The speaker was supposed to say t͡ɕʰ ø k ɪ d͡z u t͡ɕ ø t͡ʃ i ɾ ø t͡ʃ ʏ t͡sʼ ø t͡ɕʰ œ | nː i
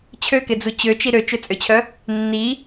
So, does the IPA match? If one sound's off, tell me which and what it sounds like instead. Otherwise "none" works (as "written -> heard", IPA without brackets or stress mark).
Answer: none